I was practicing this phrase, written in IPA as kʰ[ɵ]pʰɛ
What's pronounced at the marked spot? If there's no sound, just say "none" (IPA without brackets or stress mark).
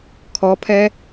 ɔ